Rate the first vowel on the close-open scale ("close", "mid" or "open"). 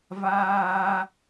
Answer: open